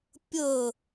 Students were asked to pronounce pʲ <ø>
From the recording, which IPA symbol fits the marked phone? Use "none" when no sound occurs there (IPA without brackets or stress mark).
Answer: ə